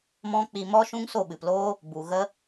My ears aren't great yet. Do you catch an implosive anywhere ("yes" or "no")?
yes